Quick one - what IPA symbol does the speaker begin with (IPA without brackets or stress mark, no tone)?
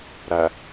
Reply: ɾ